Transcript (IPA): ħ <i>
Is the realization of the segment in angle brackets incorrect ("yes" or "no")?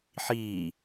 yes